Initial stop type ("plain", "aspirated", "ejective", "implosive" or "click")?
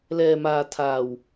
aspirated